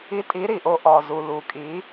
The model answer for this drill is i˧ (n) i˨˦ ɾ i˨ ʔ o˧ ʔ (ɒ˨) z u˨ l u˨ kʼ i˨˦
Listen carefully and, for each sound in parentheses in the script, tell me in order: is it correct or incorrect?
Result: incorrect: tʼ, correct

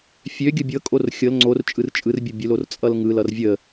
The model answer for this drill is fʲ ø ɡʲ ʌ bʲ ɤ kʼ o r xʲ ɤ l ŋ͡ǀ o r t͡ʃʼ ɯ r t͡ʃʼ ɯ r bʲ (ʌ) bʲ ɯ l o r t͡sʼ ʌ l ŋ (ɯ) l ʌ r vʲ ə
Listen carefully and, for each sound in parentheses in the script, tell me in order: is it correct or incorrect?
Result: correct, correct

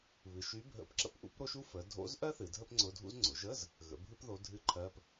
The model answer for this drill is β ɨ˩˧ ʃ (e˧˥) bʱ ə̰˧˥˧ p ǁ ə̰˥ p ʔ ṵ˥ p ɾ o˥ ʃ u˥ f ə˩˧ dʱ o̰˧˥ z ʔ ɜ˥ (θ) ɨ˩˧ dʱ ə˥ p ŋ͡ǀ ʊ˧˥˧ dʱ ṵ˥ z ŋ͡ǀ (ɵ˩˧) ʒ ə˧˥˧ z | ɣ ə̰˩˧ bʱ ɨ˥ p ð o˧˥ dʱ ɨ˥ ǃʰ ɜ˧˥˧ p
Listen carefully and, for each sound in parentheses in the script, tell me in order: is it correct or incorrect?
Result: incorrect: y˧˥, correct, incorrect: ʊ˩˧

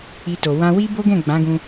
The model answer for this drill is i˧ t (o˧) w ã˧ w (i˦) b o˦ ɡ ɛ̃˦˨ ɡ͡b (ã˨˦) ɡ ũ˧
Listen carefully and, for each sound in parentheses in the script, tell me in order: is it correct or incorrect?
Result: incorrect: o˨, correct, correct

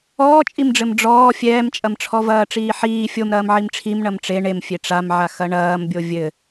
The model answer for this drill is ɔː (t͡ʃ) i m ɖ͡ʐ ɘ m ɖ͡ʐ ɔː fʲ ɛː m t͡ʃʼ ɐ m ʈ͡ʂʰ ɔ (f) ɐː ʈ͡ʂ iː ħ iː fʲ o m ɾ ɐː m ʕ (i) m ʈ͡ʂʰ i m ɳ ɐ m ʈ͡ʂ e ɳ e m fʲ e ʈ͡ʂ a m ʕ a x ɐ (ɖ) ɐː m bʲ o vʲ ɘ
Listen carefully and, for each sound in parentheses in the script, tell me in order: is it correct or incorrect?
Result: incorrect: t͡ʃʼ, incorrect: v, correct, incorrect: ɳ

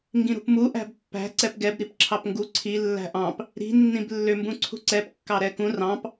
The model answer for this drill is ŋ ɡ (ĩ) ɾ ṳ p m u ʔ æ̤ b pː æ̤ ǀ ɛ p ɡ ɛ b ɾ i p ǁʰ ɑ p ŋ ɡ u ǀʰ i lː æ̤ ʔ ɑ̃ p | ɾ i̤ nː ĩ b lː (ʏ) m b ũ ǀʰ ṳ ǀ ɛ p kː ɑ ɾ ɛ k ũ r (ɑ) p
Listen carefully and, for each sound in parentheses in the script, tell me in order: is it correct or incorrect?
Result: correct, correct, incorrect: ɑ̃

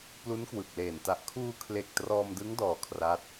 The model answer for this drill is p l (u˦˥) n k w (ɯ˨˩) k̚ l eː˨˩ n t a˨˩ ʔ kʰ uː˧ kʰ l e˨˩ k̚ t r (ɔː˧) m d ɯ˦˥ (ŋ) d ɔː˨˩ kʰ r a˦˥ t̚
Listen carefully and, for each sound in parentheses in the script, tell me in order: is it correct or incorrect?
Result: correct, correct, correct, correct

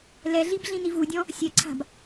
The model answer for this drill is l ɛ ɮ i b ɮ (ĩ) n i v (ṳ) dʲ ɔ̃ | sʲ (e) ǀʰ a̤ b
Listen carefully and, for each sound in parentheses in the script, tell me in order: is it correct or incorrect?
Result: correct, incorrect: u, incorrect: ɛ

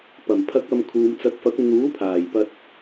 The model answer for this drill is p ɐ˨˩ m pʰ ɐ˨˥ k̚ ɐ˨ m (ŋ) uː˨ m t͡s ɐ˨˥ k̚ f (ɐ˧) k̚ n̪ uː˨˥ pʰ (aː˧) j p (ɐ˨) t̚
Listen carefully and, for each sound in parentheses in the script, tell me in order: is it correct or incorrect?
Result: incorrect: kʰ, incorrect: ɐ˨˥, incorrect: aː˨˩, incorrect: ɐ˧

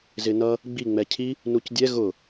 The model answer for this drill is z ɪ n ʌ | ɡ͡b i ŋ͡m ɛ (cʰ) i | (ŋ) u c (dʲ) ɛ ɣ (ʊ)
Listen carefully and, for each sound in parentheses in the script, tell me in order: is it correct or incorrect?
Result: correct, incorrect: n, correct, correct

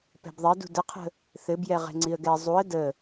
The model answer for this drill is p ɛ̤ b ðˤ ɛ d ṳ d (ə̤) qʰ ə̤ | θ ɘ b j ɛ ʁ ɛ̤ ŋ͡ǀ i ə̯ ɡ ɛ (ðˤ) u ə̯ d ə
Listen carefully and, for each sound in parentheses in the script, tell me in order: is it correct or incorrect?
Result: incorrect: ə, incorrect: zˤ

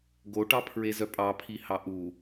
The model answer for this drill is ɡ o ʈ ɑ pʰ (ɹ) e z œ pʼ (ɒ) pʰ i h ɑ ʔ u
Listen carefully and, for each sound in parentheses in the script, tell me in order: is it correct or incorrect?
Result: correct, incorrect: ɑ

